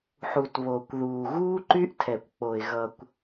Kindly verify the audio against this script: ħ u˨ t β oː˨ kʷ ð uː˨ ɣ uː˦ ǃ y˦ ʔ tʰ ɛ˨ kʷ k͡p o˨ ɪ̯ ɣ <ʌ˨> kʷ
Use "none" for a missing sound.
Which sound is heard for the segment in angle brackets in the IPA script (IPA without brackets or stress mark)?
ʌ˨